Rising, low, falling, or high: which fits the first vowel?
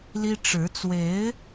high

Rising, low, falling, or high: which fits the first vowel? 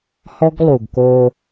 high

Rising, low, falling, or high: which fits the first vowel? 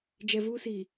low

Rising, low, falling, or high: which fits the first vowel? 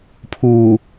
low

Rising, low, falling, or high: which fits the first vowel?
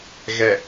low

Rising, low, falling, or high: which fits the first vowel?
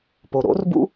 low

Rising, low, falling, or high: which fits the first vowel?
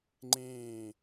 low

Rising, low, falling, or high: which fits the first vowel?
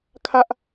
high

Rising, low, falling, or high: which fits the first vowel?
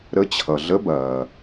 rising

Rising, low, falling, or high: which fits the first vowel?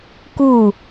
falling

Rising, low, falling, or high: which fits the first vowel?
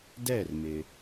falling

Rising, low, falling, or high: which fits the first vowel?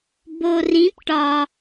low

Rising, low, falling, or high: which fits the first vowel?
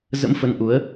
rising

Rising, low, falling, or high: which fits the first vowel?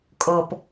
low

